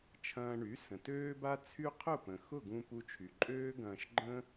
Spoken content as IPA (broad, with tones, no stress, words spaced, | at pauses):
t͡ʃʰɐ̃ː˧ɳy˩˥ sə̃˩tøː˥ba˥t͡sʰy˥ qʰʊ˥˩pə̃˩xʊ˥˩ɡũ˧ pu˧t͡ʃʰy˩ ǃʼøː˥ɡɐ̃ː˧ʃɡ͡ǃə̃˥